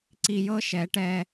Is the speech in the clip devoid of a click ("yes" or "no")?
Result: no